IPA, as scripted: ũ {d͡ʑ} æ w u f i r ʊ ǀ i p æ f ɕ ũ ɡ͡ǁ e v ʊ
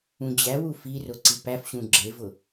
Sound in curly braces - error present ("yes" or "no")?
no